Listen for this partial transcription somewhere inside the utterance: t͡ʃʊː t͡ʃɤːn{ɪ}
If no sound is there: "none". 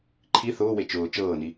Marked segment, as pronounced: i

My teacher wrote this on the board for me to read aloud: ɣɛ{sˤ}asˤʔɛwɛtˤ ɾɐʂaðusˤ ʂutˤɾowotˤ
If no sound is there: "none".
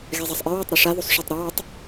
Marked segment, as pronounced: zˤ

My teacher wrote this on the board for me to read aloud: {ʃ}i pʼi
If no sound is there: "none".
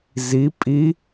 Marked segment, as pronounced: z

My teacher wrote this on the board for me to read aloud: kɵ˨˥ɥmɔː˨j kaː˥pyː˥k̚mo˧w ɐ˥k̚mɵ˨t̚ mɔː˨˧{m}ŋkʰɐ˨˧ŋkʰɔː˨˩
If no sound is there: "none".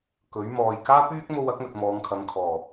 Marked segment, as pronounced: none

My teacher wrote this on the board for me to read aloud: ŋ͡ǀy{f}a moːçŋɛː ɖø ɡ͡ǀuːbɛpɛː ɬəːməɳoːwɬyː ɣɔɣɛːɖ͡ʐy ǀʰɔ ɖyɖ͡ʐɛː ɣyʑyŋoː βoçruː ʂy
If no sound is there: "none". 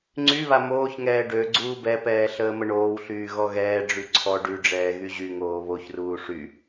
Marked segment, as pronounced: β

